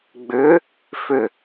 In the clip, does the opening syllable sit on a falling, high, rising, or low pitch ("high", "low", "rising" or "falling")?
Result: rising